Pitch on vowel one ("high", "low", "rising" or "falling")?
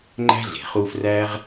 high